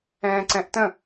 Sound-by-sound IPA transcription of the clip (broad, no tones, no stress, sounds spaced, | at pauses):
ɛ̃ː ǀ ɛ̃ ʔ t ə̃